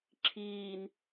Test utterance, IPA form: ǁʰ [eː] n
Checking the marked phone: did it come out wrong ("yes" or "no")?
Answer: yes